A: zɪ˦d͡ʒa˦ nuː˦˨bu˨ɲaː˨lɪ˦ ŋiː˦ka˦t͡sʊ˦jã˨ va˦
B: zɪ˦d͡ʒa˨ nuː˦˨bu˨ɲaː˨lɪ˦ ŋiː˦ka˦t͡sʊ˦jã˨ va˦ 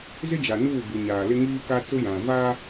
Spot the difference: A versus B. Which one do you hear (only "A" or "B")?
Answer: B